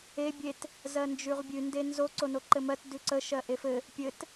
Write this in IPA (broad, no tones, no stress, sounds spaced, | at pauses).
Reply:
e bʲ e t | z ɜ n d͡ʒ ʉ ʁ bʲ ʉ n d e n z o ǀ o n o ǃ ɘ m ɜ t d ʉ ǀ ə ʃ ɜ ʔ e f ɘ | pʲ ɘ t